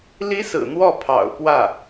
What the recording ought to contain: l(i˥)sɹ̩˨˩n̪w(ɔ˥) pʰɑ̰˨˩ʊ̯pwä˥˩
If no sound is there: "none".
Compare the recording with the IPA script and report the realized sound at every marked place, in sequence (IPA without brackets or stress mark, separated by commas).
i˥, ɔ˥˩